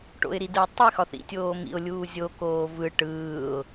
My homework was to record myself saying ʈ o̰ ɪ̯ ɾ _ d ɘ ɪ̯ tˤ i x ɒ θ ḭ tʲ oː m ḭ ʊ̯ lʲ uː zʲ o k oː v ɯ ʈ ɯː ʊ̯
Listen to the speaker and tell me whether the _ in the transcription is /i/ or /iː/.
i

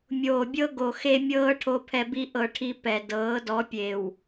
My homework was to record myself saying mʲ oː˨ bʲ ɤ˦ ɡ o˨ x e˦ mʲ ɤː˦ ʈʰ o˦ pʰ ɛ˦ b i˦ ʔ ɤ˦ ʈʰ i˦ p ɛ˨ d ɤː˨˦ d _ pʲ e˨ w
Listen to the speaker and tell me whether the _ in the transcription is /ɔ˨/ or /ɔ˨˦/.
ɔ˨˦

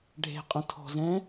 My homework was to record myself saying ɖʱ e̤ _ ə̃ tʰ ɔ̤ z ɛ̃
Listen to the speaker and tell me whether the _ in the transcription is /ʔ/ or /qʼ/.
qʼ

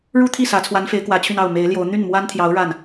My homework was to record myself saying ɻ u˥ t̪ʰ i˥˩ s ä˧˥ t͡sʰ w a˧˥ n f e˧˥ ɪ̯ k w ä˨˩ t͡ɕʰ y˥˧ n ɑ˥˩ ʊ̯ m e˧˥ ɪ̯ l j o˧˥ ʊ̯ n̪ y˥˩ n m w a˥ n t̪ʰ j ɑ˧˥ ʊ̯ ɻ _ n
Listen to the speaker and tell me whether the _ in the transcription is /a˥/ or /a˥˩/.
a˥˩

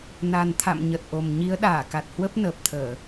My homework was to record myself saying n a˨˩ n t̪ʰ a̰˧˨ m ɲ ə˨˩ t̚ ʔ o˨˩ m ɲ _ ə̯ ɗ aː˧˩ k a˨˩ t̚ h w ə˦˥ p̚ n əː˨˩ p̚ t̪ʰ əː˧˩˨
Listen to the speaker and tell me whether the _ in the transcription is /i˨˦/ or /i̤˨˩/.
i˨˦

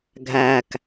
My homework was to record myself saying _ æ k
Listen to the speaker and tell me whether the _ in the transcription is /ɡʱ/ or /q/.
ɡʱ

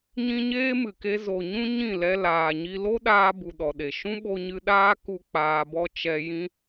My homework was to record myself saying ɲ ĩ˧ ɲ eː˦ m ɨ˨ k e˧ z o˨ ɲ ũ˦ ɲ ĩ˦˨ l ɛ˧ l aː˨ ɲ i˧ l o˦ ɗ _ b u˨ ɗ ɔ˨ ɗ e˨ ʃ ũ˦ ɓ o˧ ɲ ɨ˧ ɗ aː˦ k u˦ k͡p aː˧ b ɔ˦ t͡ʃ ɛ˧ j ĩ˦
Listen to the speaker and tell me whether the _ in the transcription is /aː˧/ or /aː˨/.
aː˧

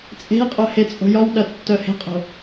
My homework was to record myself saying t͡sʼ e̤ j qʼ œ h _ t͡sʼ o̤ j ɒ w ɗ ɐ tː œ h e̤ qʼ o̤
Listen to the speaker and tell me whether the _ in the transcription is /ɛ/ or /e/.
e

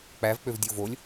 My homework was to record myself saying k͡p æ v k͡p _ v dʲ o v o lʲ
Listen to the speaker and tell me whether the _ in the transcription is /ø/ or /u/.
ø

